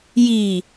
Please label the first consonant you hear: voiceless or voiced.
voiced